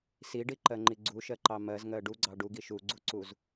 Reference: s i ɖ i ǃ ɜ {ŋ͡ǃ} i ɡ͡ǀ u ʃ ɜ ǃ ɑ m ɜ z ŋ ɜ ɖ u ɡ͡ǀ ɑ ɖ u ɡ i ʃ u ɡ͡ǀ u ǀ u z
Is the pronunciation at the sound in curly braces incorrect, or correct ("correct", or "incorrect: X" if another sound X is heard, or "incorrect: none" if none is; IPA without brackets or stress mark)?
correct